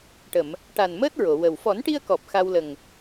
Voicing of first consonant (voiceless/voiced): voiceless